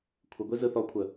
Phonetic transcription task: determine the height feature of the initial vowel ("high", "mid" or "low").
mid